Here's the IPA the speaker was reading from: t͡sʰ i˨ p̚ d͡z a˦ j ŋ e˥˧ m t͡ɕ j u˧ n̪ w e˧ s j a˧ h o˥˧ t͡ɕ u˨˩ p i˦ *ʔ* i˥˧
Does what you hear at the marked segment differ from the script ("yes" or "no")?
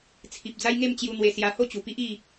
no